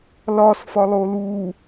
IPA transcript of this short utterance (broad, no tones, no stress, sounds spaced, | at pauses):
l ɒ s f ɒ lˠ o l u